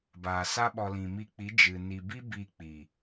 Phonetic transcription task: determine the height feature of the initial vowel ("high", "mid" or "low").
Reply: low